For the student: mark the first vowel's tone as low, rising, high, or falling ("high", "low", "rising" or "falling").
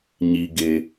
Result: low